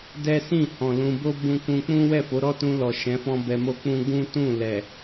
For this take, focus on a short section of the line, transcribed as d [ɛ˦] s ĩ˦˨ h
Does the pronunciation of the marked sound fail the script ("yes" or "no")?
no